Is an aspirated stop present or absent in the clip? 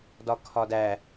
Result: present